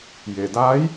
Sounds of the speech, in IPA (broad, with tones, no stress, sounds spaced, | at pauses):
j e˩ d aː˧˥ j